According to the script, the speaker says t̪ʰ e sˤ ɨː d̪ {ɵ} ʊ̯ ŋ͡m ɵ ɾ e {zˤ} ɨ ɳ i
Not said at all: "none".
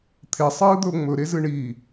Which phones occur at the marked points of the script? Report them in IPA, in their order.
ɵ, z

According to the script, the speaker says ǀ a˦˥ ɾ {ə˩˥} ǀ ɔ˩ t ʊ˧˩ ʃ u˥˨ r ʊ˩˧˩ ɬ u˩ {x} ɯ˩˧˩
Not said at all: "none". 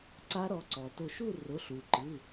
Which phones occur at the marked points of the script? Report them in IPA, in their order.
ɔ˩˥, ǃ

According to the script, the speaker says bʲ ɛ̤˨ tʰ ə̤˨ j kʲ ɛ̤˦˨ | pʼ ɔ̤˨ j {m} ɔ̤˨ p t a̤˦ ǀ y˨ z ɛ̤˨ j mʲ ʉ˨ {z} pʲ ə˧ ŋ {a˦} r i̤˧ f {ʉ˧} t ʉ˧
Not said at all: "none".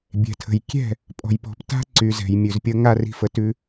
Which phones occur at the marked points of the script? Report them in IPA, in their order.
p, z, a˦, ə˧

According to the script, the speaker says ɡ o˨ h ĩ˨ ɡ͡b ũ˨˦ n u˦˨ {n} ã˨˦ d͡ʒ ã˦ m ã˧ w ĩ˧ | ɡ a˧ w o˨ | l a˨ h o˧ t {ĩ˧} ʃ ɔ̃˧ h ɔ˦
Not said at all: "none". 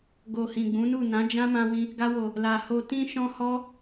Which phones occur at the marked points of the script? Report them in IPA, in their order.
n, ĩ˧

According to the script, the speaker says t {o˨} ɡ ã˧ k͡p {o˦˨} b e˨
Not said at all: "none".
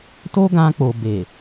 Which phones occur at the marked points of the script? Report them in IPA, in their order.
o˦, o˨

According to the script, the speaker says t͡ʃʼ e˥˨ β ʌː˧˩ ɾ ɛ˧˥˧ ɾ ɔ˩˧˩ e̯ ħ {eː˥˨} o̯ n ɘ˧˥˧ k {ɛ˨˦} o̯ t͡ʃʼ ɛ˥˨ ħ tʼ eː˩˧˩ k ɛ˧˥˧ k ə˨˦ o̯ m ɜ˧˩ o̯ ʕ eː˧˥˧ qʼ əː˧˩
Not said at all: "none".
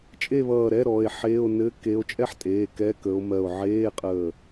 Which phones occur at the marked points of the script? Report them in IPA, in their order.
eː˧˥˧, e˨˦

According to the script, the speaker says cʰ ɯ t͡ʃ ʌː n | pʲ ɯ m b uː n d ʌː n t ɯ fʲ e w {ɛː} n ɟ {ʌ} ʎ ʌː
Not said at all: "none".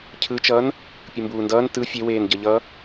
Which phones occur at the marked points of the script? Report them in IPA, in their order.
eː, ʌ

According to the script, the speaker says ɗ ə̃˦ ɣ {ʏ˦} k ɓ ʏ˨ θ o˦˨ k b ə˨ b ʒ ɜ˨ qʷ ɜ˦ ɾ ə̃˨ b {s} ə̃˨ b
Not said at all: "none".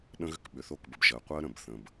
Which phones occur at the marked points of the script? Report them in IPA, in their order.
ʏ˦, θ

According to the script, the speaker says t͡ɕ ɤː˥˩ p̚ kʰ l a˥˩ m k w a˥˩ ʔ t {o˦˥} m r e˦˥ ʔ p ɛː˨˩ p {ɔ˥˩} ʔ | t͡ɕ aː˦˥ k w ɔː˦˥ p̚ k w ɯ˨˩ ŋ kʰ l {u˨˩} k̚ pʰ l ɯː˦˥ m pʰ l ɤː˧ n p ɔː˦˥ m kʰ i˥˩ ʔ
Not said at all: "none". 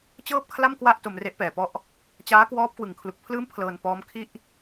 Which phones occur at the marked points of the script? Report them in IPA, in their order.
o˧, ɔ˥˩, u˨˩

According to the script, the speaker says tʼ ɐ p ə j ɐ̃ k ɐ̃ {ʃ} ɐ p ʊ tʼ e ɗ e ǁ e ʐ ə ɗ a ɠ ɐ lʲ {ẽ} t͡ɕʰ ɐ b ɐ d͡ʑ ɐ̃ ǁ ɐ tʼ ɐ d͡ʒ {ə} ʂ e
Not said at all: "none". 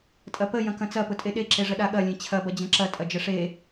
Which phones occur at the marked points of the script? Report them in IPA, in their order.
t͡s, ẽ, ə

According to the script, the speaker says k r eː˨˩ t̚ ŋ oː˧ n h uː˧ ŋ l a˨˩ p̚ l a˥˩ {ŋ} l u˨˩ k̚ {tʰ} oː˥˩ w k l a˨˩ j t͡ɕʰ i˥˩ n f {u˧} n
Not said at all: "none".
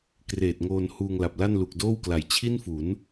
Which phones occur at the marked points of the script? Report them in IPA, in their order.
n, d, u˩˦

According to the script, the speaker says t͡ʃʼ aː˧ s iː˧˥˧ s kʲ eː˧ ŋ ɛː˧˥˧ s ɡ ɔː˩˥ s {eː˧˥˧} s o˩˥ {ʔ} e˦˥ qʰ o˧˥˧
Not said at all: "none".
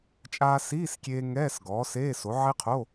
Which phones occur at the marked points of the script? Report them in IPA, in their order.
eː˧˥˧, ʕ

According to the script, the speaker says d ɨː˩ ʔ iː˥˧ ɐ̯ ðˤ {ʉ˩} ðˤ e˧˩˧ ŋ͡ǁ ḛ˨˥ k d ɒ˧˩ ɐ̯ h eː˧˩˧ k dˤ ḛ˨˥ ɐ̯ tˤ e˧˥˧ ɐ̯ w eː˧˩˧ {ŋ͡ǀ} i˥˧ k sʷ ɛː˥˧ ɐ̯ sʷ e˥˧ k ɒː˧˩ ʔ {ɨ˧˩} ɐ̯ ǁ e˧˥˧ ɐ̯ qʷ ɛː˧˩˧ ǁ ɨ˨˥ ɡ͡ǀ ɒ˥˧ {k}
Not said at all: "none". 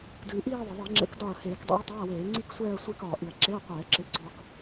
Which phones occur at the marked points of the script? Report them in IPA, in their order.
ɘ˩, ŋ͡ǀ, ɨ˧˩, k

